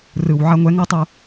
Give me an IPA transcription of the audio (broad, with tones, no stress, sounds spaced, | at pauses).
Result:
r ɯ˨ w ʕ a˧ ŋʷ ɛ˨˦ ŋ ɤ˦ tˤ o˧